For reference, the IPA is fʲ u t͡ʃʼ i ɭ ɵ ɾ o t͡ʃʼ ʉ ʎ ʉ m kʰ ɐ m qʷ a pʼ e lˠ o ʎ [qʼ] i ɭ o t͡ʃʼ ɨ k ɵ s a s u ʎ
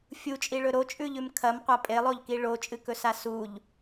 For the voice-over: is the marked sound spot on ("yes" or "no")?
no